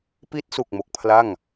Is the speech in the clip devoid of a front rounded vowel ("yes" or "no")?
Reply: yes